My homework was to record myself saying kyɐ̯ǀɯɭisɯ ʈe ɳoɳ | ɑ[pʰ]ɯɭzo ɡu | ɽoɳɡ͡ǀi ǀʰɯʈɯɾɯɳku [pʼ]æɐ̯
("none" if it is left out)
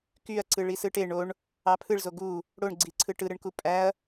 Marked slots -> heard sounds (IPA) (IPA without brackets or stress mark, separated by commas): pʰ, pʼ